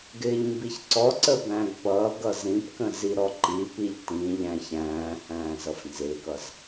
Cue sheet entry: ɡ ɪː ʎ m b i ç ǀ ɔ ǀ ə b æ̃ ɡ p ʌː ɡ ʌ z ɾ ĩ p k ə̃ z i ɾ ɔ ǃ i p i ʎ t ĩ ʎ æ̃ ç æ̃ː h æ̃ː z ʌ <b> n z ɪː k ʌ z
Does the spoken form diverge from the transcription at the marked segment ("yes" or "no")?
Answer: yes